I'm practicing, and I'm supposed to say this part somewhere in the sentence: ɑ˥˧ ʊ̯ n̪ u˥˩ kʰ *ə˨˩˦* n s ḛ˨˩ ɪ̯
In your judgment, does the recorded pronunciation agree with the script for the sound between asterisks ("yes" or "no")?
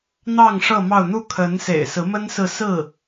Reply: no